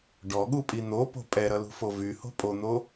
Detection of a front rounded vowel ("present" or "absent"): present